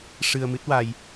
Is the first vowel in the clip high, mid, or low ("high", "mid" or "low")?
high